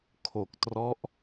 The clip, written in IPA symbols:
kʰ o˨˩ k̚ t r ɔ˦˥ ʔ

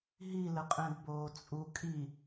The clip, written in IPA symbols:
ɦ i l ə qʼ ɛ̃ d b oː t͡sʼ u kʼ i

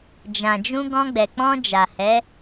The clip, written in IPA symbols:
d͡ʒ ã˨ d͡ʒ ũ˧ ɡ ɔ̃˧ ɡ͡b ɛ˨ k͡p ɔ̃˧ d͡ʒ a˨ h ɛ˨˦

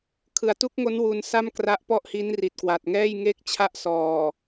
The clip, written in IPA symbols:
kʰ ɯ˨˩ a̯ t u˥˩ k̚ ŋ o˦˥ n w u˧ n s a˥˩ m k r a˦˥ ʔ p ɔ˥˩ ʔ h i˦˥ n r i˨˩ t̚ k w a˨˩ t̚ ŋ ɛː˥˩ j ŋ e˥˩ k̚ t͡ɕʰ a˥˩ ʔ s ɔː˨˩

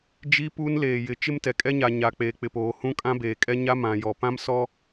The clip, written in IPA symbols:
d͡ʒ i˦ p uː˦ n l eː˨ j ɪ˨ t͡ʃ ɪ˦ m t ɛ˨ kʼ ɛ˦ ɲ a˨ ɲ a˨ k͡p eː˨ k͡p ɪ˨ p oː˨ h ũ˦ kʼ ã˦ b eː˨ kʼ ɛ˦ ɲ a˦ m ã˨ j ɔ˨ p ã˦ m s ɔ˦

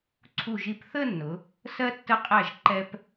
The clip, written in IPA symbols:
ǀʰ u˧˩ ʒ i˧˩ p θ ə˥˧ nː ʊ˩˧ | s ɜ˧ tː ə˧˩ qʼ æ˧˩ ʒ ǃ ɛ˧ p

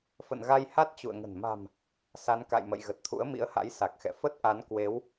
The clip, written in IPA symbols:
f ə̰˧˨ n ɣ a˧ j h a˦˥ t̚ t͡ɕ ṵ˧˨ ə̯ ŋ ə̤˨˩ n m a̤˨˩ m | s a˨˦ n k a̰˧˨ j m ə̰˧˨ j ɣ ə˨˩ t̚ t̪ʰ ṵ˧˥ ə̯ m ḭ˧˥ ə̯ h a̰˧˥ j s a˨˩ k̚ x ɛ̰˧˨ f ə˦˥ t̚ ʔ a˨˦ n k w e˨˦ w

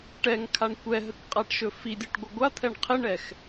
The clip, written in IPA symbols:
ʈ ɛ ŋ kʰ a ɳ kʷ ɛ ɦ ə k qʼ a ʈ ʃ ɵ f i dʲ ɵ ʈ ɡʷ ɪ ɡʷ a t̪ʰ ɛ ɳ qʰ ɪ ɳ ɛ x

